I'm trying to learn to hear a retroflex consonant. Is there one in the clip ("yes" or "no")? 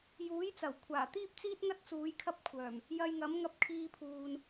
no